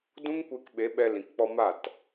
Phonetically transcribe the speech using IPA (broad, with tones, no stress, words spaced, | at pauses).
dũ˦ŋkʷe˧k ɓe˨˦ɓɛ˧ lĩ˨kk͡pɔ˧ma˦˨t